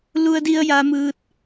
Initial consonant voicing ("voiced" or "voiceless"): voiced